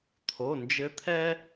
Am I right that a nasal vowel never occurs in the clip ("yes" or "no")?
yes